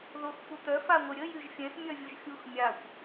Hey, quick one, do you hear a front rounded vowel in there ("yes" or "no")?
yes